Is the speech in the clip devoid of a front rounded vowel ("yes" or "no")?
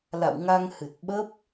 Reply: yes